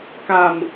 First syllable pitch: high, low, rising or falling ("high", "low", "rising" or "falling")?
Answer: low